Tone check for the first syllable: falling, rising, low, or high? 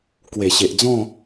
low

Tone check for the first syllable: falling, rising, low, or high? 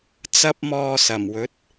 high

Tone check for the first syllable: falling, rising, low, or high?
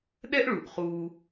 high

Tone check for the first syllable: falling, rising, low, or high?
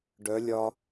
rising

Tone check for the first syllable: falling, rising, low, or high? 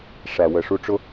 low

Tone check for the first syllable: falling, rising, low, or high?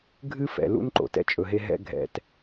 high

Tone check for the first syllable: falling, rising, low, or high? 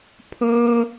high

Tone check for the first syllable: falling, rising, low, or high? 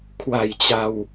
low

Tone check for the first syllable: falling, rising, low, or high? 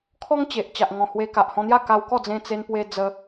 high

